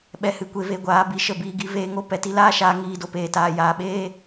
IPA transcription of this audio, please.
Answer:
ɓ ɛ˨ h ɨ˨ kʷ e˨ v e˨ ɡʷ aː˨˦ b i˨ ʃ ə˦˨ b iː˧ ɡ i˦ v eː˧ ŋ o˦ p ɛ˨ t i˦ l aː˦ ʃ aː˧ ŋ iː˦˨ d o˧ p eː˨ t aː˨ j aː˨ ɓ eː˦

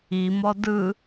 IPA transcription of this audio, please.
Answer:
i m ɔ d ɯ

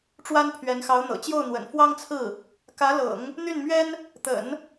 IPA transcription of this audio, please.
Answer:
ʈ͡ʂ w a˥ n pʰ ɥ ɛ˧˥ n x ɑ˧˥ ʊ̯ n̪ ɤ̰˨˩ t͡ɕ j o˥˩ ʊ̯ n̪ w ə̰˨˩ n f w ɑ˥ ŋ t͡sʰ ɹ̩˥˩ | k ä˧˥ l ɤ̰˨˩˦ ŋ | n̪ y˥˩ n m ɥ ɛ˥ n | t̪ ə̰˨˩˦ n

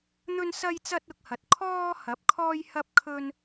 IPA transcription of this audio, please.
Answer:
n̪ ɵ˥ n s ɐ˥ j t͡s ɐ˥ t̚ ʊ˧ k̚ h ɐ˨ t̚ kʰ ɔː˥ h ɐ˨˥ p̚ kʰ ɔː˥ j h ɐ˥ p̚ kʰ ɵ˥ n

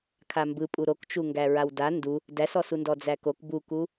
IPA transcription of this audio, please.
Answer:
kʰ a m b ɯ pʼ u ɾ o k t͡ʃ u ŋ ɡ æ ɹ a w d a n d u | d æ s ɔ s u n d ɔ d͡z æ k o k b u k u

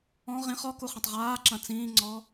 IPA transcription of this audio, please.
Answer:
ɔ̃ ʁ ĩ χ ɔ k u χ ɐ̃ tˤ ʁ aː ǁ ɐ̃ t͡s ĩː ŋ͡ǀ ɔ

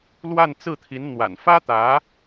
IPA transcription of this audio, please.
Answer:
l w a˥˧ n t͡s ɹ̩˥˩ t̪ʰ i˧˥ n n̪ w a̰˨˩ n f ä˥ t̪ ä˧˥

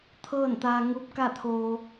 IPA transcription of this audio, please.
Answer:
t̪ʰ ɤː˥˨ n t̪ aː˧ ŋ u˧˥ p̚ k a˥˨ t̪ʰ oː˧

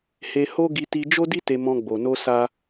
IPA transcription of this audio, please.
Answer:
h e˧ h o˦ ɡ i˧ t i˧ d͡ʒ o˦ d i˦ t e˧ m ɔ̃˧ ɡ͡b o˨ n o˧ s a˦

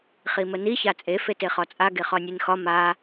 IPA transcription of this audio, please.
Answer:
χ i m ə n i ç a t͡sʼ e f e t e χ ɒ t͡sʼ a ɡ e χ ɒ nʲ e n x ɒ m a

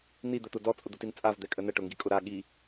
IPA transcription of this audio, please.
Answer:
n̪ i d̪ ə t̪ ʊ d ɔ t͡sʼ ʊ d̪ ʊ t i n t͡sʼ a v d̪ ɛ kʼ ə n ə ʈ ʊ ŋ ɡ i kʼ ʊ ɾ a ɠ i

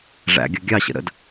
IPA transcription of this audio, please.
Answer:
ʐ æ̰ ɡʲ ʌ ɡʲ ɑ ɕ ə̰ ɾ ə̰ d

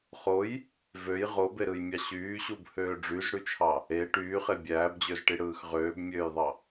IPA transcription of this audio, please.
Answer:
χ o j | v ø j ʁ o b e ɾ ɯ j mʲ ɑ ɕ yː ɕ u b h øː ɖ͡ʐ y z ɽ y t͡ʃʰ ɑ | e ʈ yː χ e bʲ æː b d͡ʑ ø z ʈ i ɽ ɯː x ʁ øː b mʲ øː j ðˤ ɑ

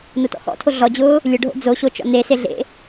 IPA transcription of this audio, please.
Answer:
n o t ɔ̰ x ɔ̰ tʰ o ɮ ɔ d͡ʑ ʊː | lʲ ʊ ɖʱ o̰ d͡z o ɕ o t͡ʃ ɔ̰ n e s e ɮ ḛ

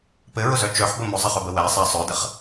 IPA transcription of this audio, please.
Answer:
p ɘ ɹ ʊ z œ t͡ʃ œ ħ b ə m ʊ zˤ ə χ œ b ə w æ sˤ æ sˤ œ d ə χ

